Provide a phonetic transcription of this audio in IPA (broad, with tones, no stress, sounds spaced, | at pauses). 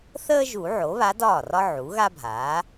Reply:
θ əː˥ ʒ u˨˩˦ ʕ o˩˥ β a˧˥ d ɒː˥˩ r ɒ˥ ʕ u˩˥ ɣ a˥ bʱ aː˩˥